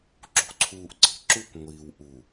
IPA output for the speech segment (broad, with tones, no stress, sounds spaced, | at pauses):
ǁ ṳ˨ ǀʰ uː˨ ʔ ǀ i̤˨ ǁ u˦ kʷ ŋʷ iː˨ w ʔ u˨